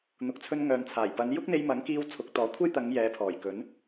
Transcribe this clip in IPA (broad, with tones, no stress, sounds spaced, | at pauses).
n̪ ʊ˨ k̚ t͡sʰ ɵ˧ n ŋ œː˨ n t͡sʰ aː˨˩ j p ɐ˨˧ n j ʊ˥ k̚ n̪ e˧ j m ɐ˨˥ ŋ k iː˧ w t͡sʰ ʊ˨˥ k̚ t̪ ɔː˨˥ kʷʰ e˥ j t̪ ɐ˨˧ ŋ j ɛː˨˧ pʰ ɔː˨˩ j k ɵ˨˥ n